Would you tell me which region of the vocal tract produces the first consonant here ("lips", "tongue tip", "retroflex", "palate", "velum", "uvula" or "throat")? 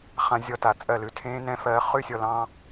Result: uvula